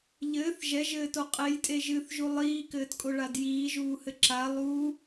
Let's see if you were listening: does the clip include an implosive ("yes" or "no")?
no